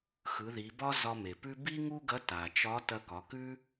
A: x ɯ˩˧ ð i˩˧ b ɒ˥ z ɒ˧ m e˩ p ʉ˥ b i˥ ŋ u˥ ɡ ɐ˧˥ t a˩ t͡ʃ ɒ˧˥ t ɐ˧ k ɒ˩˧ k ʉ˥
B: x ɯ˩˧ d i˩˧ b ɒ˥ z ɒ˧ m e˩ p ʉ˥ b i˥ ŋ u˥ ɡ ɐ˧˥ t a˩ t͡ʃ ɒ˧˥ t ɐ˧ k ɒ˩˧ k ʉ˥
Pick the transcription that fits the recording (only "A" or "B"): A